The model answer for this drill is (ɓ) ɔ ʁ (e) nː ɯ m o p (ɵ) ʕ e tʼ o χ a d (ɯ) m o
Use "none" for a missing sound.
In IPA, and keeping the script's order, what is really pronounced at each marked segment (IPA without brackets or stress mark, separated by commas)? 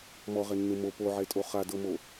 m, e, o, ɤ